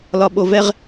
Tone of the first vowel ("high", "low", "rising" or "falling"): low